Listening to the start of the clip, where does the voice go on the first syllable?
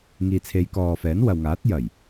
low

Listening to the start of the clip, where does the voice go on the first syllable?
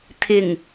low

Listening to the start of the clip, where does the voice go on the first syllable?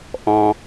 high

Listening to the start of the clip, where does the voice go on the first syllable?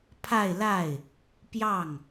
falling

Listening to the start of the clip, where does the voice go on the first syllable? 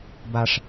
high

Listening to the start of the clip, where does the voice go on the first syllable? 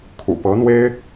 low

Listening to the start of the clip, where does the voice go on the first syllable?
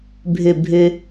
falling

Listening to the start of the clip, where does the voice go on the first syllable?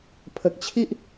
low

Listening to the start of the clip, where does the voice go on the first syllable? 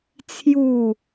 falling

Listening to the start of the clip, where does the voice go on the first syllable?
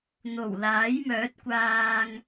low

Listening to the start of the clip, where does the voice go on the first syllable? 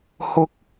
high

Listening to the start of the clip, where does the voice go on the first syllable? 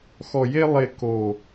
low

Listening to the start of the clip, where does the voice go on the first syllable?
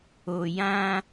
low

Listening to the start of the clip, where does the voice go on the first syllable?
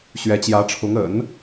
rising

